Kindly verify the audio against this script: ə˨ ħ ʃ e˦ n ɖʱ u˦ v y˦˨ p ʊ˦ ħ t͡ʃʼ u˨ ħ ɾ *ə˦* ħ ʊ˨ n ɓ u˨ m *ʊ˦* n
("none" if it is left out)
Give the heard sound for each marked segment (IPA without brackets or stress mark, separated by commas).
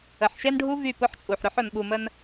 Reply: ʊ˦, ə˦